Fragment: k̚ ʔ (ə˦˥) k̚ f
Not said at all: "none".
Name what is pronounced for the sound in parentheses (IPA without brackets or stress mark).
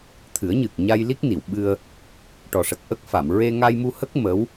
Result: ə˦˥